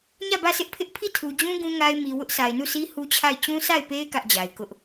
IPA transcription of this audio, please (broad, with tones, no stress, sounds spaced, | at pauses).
ɲ ä˦˨ b ä˦˨ sʰ ɪ˦ ʔ pʰ ɪ˦ ʔ pʰ i˦˨ tʰ u˨ d͡ʑ ũ˦ ɡ ũ˦ ŋ a˦ ɪ̯ m i˨ w ʊ˦ ʔ s a˨ ɪ̯ n u˦˨ s i˦ h u˦ t͡ɕʰ a˦˨ ɪ̯ t͡ɕ ũ˦ sʰ a˦˨ ɪ̯ p e˦ ɪ̯ k ä˦ ʔ d͡ʑ a˨ ɪ̯ k ʊ˦ ʔ